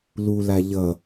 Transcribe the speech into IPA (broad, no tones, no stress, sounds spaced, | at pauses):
l u l a ʎ ʌ